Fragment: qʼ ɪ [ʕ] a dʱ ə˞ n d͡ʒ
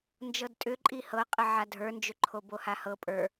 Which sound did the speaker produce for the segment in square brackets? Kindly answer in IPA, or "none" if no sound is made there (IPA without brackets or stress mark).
ʕ